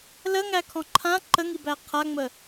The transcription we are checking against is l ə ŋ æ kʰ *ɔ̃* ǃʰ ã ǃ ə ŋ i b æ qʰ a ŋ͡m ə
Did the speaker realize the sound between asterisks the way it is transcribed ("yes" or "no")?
yes